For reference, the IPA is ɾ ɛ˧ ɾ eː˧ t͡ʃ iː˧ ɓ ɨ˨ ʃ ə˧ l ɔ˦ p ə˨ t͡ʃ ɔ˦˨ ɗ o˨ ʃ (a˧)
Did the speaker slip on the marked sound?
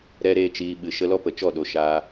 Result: yes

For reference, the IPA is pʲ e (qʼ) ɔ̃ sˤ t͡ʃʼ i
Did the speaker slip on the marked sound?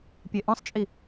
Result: yes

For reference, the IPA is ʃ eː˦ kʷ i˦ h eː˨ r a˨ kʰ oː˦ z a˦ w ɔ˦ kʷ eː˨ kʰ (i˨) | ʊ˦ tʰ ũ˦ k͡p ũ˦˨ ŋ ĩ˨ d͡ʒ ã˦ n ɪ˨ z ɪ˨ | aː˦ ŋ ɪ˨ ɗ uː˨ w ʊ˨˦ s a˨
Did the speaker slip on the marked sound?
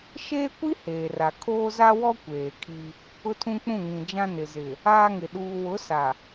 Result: yes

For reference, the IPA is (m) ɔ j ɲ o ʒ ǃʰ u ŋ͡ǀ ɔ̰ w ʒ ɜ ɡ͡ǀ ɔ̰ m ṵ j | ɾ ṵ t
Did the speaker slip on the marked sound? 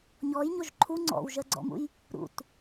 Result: yes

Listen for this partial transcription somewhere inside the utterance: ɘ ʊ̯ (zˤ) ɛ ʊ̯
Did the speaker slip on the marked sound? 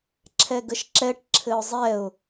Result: no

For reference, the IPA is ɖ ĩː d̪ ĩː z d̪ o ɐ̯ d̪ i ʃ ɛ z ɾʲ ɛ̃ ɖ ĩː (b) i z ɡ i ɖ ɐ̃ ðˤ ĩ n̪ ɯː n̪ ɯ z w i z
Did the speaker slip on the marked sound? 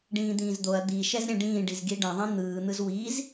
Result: yes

